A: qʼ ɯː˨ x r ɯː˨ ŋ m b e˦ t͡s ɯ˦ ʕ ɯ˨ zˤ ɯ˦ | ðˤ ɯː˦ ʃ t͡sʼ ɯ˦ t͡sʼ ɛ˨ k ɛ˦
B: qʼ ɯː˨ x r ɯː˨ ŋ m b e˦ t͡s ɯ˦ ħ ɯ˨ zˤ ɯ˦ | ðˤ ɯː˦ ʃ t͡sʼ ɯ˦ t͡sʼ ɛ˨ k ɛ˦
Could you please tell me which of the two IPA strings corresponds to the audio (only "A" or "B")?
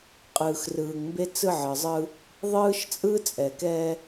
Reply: A